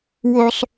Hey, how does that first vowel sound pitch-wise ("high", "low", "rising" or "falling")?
high